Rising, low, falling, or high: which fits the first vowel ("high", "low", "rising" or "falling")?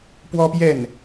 high